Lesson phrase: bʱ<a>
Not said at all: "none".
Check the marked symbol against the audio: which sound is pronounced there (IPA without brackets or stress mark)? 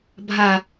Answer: a